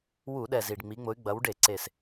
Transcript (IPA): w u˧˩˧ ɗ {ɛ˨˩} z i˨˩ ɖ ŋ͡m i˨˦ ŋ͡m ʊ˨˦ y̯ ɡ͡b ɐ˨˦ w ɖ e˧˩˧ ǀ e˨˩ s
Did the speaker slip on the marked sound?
no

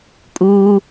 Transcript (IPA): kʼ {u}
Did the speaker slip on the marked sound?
yes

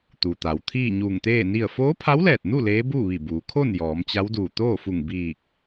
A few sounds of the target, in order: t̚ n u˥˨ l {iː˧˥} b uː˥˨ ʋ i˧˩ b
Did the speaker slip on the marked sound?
yes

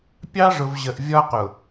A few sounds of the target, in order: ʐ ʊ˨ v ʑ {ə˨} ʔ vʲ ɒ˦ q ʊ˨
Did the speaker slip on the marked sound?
no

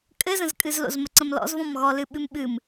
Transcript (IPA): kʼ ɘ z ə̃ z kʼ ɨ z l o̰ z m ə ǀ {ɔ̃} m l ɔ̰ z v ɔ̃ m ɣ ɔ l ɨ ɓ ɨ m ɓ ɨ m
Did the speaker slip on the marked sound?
yes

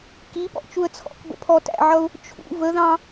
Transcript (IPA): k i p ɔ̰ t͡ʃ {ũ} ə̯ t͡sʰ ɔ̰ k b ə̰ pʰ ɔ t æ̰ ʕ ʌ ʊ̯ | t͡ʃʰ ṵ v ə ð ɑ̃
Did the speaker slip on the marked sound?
yes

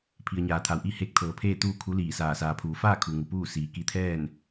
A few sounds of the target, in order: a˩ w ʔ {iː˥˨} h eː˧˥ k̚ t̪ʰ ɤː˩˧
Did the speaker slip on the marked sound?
yes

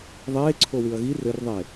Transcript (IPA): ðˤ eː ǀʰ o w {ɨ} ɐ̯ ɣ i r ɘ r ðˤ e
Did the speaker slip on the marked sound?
no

